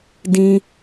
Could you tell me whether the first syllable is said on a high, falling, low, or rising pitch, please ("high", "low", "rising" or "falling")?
high